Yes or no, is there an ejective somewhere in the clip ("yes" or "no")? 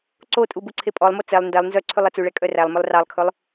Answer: yes